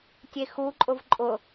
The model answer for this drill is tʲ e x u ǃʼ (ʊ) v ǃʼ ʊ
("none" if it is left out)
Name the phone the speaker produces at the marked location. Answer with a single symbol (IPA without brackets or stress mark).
ʊ